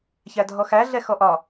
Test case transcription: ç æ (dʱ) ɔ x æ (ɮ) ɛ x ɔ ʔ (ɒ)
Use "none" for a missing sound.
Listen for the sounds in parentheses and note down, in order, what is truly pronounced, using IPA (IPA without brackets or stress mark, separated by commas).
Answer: dʱ, ɮ, ɒ